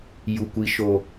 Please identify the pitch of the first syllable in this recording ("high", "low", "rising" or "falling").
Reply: low